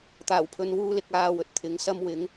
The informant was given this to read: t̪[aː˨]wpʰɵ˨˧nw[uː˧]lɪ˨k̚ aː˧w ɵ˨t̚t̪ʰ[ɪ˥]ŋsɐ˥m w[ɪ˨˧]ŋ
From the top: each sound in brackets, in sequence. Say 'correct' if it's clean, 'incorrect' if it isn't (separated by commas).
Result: incorrect, correct, incorrect, correct